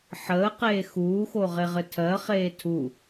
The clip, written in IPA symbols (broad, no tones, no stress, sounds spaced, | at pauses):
ħ əː q eː x uː x o ʁ e ʁ ɘ tʰ ɜ χ eː tʰ u